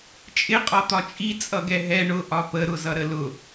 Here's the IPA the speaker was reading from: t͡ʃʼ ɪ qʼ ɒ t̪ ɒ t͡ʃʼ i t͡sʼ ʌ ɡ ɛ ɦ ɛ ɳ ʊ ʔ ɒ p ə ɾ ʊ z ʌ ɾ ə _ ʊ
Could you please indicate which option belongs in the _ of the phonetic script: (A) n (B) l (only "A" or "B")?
B